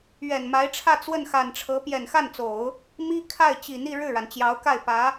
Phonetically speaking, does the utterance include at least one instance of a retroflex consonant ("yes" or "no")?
yes